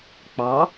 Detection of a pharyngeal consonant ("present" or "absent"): absent